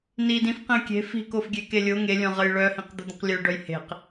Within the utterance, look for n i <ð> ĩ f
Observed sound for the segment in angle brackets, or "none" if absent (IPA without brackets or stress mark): d